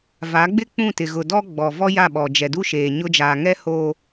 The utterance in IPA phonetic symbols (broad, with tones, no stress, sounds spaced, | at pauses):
v a˨˦ ɡ͡b ɪ˦ k͡p ũ˦˨ t ɪ˨ ɣ ʊ˨ d ɔ˦ ɡ͡b ɔ˨ v ɔ˦ j a˦˨ ɓ ɔ˨ d͡ʒ ɛ˨ d u˦ ʃ eː˨ ɲ ʊ˦ d͡ʒ aː˨ ŋ ɛ˦ h oː˨